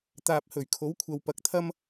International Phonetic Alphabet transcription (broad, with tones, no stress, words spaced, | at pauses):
t̪aː˨p̚hɵ˨˩ɥkʰo˨˥wkʷʰɐ˨w pɐ˨k̚t̪ʰɐ˥m